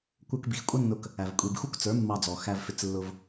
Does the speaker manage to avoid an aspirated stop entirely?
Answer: yes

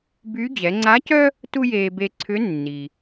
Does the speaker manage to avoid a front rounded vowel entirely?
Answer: no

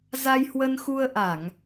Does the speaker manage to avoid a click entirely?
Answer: yes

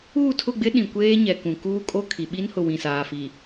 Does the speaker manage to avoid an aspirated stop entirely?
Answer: no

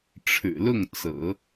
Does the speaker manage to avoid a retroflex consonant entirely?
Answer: no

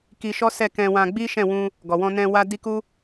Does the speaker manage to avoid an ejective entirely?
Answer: yes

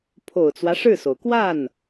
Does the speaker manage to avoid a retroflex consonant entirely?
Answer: no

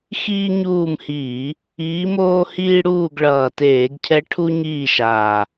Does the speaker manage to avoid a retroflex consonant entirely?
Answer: no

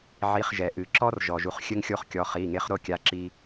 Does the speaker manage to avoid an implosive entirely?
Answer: yes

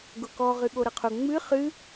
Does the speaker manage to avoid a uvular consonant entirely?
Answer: no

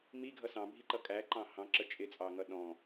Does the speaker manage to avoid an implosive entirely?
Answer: no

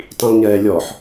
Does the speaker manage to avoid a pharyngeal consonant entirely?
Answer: no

